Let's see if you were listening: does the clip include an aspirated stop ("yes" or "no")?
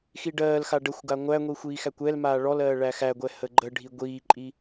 no